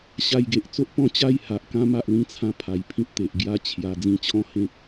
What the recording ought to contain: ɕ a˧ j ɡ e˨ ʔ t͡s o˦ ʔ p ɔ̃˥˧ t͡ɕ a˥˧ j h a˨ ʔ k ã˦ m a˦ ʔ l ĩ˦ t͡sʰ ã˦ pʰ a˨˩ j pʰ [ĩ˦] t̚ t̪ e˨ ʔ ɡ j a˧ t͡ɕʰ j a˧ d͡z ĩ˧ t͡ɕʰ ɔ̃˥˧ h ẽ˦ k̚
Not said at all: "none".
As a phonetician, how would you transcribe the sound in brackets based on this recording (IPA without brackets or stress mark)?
ĩ˦